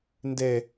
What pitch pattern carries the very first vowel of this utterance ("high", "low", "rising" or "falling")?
high